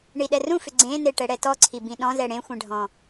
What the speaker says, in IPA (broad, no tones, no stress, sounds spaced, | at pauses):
ɳ i ɗ ɛ r ũ f ʏ ɡ͡ǀ ẽ n e ʈ ɛ ɽ ɛ t ɔ ǀʰ i b ĩ ɗ ɔ̃ z ɛ ɽ ẽ xʷ ẽ ɖʱ ɔ̃